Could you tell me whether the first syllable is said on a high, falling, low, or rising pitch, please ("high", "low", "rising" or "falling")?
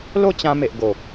falling